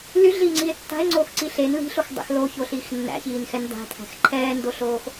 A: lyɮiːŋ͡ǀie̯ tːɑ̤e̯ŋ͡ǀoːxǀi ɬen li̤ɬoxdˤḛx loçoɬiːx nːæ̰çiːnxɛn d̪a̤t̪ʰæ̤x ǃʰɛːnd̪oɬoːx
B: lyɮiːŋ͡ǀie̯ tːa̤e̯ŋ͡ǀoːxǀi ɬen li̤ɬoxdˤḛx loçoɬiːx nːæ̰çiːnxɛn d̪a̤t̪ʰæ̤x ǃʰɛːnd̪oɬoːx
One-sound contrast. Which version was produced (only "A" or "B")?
B